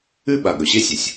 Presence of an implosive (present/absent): present